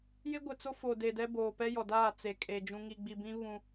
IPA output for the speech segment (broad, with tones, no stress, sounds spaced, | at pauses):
j ɪ˦ ɡʷ ɪ˨ t͡s o˦ f o˨ d e˨ d ɛ˦ b oː˨ p ɛ˦ j ɔ˨ d aː˦˨ t͡s e˨ kʼ e˨ d͡ʒ ũ˨ ŋ i˨ ɡ͡b i˨ b ĩ˦ β ũ˦